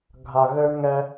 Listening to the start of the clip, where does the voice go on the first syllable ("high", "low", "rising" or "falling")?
low